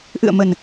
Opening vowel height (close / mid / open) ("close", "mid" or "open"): close